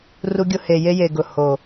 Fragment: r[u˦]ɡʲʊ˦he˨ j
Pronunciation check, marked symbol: correct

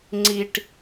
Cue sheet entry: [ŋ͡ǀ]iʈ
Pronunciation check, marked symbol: correct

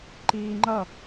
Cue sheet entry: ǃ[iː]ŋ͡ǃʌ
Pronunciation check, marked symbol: correct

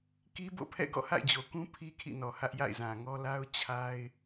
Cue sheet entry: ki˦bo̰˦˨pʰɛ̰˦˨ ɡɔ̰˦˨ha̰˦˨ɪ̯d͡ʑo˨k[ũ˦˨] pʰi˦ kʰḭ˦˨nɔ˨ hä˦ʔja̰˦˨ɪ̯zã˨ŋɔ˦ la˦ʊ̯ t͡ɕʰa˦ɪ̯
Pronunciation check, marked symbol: incorrect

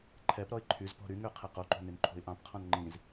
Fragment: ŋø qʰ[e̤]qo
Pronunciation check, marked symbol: incorrect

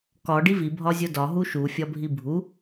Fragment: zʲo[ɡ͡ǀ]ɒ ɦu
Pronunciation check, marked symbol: incorrect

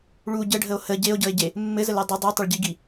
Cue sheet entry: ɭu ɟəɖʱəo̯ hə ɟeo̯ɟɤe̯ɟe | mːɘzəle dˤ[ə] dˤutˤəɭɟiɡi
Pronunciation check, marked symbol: correct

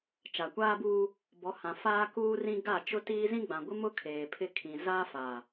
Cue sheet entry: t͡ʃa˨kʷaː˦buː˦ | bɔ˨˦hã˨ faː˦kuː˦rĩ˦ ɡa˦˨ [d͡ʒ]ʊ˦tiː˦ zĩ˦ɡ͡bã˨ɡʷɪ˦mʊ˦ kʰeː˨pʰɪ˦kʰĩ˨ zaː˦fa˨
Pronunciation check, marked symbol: incorrect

